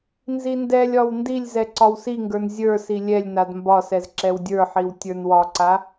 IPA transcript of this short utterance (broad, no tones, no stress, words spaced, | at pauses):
nzindɛlʲɒw ndilʲzɛ ǀɒwsiŋɡə˞n zʲə˞si lʲɛlʲnad mbɒsɛz ǁɛwdʲə˞ħiw tʲə˞nwɒǀa